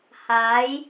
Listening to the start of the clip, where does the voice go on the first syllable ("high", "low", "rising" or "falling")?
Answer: rising